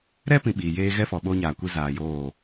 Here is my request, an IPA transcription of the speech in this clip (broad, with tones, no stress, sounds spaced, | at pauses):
ɾ ɛ˦ p ĩ˨ ɓ iː˨ j eː˦ ɣ ɛ˦ f ɔ˨ ɓ oː˦ ɲ aː˨ kʷ i˦ z aː˨ j oː˦˨